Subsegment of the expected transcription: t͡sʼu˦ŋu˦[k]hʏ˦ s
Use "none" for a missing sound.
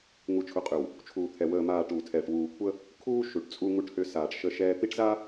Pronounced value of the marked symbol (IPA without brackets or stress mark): ʈ